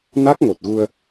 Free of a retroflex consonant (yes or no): yes